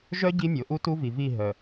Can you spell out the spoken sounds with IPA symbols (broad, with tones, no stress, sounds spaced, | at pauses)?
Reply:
ʒ œ˦ ɟ i˦ mʲ o˨ ʔ u˦ t u˦ v i˨ v i˦˨ ɦ œ˨